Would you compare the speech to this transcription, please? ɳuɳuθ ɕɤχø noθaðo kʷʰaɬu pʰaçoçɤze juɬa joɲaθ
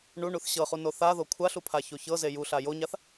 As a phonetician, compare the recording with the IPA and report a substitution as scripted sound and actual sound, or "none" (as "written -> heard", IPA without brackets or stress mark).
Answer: ø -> u